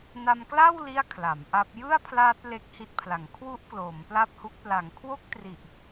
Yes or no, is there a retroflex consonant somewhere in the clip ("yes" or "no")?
no